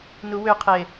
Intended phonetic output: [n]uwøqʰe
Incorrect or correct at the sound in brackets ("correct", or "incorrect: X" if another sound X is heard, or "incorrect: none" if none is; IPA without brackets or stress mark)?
correct